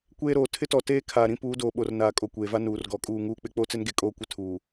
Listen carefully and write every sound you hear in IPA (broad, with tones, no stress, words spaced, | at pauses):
kʷeː˦ɾoː˨ tʰɪ˦tɔ˨ teː˦kʰaː˨ɾĩ˦ puː˨˦doː˨ɓo˨rnaː˨ kʼo˨kʷeː˨va˦ nuː˨rɡɔ˨˦kʼuː˦˨ ŋuː˦k͡pɪ˦ k͡po˦t͡sɪ˦nɡe˨ kʼoː˦kʷɪ˦tʰuː˨